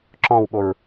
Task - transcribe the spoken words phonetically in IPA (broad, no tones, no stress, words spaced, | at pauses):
ǁɔ̃wɓoɹ